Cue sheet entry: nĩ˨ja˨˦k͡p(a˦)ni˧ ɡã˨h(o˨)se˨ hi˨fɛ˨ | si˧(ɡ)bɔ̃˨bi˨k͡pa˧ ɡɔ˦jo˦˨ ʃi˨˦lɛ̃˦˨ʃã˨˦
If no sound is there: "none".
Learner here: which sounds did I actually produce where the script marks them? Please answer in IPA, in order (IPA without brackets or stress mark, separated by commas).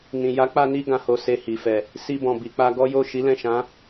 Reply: a˧, o˨, none